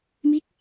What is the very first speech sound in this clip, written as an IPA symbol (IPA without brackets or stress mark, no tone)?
m